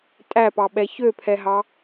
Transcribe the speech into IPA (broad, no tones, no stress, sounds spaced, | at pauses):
tʼ æ p ɑ ɓ ɛ ç ø pʰ ɛ ɦ ɑ